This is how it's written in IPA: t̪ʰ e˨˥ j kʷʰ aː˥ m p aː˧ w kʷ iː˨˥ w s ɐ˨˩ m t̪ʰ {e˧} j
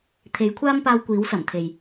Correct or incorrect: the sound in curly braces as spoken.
incorrect: e˨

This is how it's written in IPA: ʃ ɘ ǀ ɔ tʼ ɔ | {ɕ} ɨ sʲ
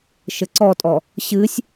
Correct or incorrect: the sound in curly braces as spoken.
correct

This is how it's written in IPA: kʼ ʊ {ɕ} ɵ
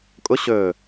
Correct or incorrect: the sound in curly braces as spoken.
correct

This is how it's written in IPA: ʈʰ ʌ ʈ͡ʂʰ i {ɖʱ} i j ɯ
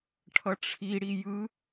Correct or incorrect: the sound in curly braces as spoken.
incorrect: ɽ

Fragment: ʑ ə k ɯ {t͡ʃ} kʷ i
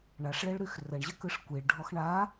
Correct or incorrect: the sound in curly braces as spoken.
incorrect: ʂ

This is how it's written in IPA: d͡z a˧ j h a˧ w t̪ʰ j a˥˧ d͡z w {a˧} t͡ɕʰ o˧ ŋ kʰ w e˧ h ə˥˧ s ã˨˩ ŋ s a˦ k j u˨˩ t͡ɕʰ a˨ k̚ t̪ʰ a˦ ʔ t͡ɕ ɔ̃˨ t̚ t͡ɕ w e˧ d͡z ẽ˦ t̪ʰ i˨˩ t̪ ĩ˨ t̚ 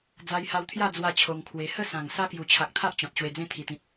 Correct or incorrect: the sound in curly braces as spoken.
incorrect: a˥˧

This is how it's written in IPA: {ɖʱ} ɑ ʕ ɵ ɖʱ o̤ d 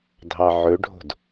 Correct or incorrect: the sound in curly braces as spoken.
incorrect: dʱ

